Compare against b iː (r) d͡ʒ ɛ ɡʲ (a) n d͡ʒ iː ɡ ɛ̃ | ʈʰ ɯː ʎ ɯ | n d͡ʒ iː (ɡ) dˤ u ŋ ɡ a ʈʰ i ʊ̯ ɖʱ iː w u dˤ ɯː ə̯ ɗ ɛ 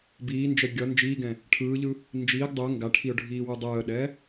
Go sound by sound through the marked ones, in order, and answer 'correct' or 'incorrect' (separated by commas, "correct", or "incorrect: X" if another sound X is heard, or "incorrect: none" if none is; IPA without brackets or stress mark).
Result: incorrect: n, incorrect: ʌ, correct